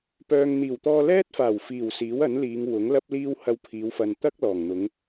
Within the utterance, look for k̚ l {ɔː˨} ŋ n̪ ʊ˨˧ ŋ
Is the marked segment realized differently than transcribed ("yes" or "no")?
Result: yes